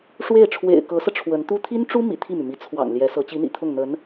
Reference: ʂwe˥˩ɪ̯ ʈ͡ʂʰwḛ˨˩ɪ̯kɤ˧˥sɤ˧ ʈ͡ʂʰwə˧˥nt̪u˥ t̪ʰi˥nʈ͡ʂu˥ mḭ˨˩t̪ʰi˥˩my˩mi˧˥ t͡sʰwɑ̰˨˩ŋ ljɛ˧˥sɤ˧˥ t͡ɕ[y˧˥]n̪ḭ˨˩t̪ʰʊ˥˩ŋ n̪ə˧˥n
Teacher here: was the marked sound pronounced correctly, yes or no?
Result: no